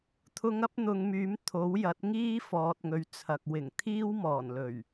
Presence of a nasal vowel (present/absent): absent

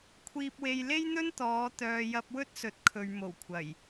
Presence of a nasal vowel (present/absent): absent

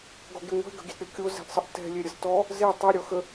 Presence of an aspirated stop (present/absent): absent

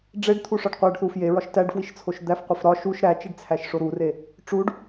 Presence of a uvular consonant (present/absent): present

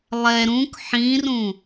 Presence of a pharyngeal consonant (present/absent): present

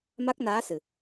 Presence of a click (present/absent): absent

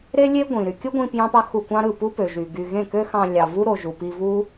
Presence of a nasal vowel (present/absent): present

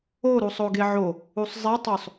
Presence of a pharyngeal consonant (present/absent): present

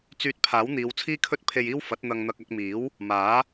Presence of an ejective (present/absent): absent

